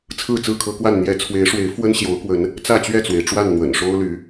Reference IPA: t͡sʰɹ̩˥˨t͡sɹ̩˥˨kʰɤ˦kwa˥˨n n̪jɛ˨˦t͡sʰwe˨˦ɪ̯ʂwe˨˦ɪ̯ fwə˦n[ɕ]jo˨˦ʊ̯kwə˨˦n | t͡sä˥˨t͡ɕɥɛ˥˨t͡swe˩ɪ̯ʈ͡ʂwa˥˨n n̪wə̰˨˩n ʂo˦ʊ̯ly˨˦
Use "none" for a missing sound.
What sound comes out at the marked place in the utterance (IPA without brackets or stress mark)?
ɕ